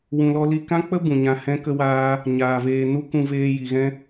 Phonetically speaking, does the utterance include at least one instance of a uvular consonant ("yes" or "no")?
no